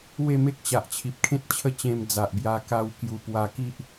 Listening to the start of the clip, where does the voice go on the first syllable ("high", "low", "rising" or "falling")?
falling